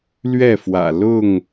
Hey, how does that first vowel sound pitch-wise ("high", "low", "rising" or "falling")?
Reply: falling